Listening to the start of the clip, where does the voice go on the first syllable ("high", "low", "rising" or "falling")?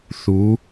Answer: rising